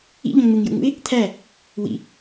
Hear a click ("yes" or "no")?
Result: no